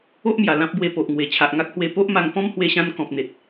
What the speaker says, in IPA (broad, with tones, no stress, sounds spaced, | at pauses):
o˦ ʔ m j a˨˩ l ã˦ p̚ b w e˧ p o˨ ʔ ŋ w e˨˩ t͡ɕʰ a˨ ʔ ŋ a˦ k̚ h w e˧ p o˦ ʔ m a˧ ŋ p ɔ̃˦ m h w e˧ ɕ ã˧ n k ɔ̃˨ p̚ n̪ e˨ t̚